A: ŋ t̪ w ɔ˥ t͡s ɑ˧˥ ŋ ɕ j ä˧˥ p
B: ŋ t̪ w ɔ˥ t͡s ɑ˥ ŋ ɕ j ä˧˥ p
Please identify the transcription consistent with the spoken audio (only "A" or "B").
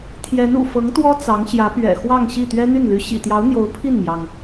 A